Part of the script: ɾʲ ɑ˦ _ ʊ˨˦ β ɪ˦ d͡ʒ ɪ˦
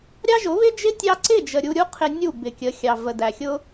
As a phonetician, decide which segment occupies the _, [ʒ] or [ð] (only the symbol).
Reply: ʒ